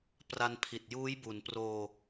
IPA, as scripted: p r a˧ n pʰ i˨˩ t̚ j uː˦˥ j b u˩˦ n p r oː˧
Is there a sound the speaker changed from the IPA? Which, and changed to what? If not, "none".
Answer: none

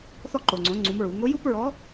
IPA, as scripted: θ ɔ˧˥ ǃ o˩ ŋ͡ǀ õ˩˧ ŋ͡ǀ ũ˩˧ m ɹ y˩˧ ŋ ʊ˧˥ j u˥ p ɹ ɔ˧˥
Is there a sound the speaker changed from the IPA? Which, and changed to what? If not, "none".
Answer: y˩˧ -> u˩˧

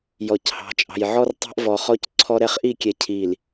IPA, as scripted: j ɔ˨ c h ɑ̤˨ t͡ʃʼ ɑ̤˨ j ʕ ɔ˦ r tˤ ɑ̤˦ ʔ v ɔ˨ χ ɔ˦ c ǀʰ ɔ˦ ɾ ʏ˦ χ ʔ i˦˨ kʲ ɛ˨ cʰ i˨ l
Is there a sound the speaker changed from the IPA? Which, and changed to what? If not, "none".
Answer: ʏ˦ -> ɛ˦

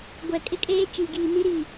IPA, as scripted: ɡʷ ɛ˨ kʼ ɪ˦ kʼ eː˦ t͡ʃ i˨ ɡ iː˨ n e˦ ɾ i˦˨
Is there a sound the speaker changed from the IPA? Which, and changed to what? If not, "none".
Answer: e˦ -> i˦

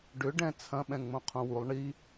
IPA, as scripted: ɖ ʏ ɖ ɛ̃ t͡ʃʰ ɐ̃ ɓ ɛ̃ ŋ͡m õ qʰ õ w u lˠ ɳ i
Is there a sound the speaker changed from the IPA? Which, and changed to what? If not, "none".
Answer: t͡ʃʰ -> t͡sʰ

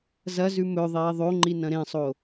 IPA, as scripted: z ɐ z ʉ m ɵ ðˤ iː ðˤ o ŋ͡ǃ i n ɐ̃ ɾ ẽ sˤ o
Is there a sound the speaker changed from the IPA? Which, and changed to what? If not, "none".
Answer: none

